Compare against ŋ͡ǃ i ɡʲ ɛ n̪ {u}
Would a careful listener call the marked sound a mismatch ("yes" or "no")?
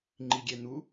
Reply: no